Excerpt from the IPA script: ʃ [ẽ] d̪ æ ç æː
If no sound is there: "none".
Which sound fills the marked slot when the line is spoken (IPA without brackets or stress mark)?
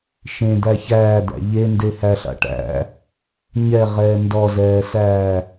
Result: ẽ